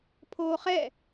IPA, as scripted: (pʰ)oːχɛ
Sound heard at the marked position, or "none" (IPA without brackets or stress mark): pʰ